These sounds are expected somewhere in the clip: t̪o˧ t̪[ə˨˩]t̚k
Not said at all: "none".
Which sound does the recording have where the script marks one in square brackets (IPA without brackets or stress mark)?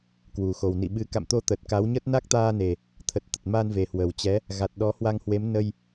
ə˨˩